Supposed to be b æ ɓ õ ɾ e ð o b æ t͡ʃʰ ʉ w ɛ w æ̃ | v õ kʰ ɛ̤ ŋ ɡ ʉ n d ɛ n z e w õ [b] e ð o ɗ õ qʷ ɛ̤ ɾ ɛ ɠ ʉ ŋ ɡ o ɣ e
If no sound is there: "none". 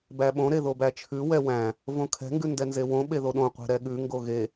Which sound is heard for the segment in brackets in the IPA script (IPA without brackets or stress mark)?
ɓ